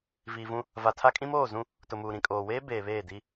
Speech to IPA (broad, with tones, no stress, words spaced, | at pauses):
viː˨vũ˦ | va˨tʰa˦kʼĩ˦m oː˦˨zũ˦ | tʊ˨muː˨ ɾĩ˨kʼoː˨weː˦ beː˨βeː˦˨di˦